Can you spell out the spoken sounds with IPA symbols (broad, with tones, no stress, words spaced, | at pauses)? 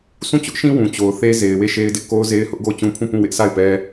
sũ˦˨t͡ɕʊ˦ʔʃĩ˦ wũ˨t͡ɕo˨ʊ̯θe˦ ze˨ɪ̯ we˦˨ʃe˦ɪ̯dɪ˦ʔ ko˦ʊ̯ze˦ɪ̯ hʊ˦ʔɡo˦˨ʊ̯t͡ɕũ˦pʰũ˦˨ pũ˦˨wɪ˦ʔsa˦˨ɪ̯pɛ˦